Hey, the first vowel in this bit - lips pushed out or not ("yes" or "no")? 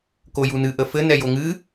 yes